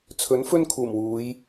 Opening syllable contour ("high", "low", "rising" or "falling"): rising